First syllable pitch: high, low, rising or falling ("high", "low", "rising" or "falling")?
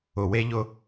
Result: low